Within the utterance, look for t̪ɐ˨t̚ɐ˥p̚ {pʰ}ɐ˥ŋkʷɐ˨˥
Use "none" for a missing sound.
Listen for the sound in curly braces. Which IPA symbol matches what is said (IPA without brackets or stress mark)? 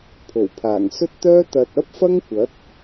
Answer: f